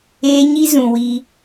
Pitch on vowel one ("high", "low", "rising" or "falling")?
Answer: high